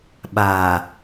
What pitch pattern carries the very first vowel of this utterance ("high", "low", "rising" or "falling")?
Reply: low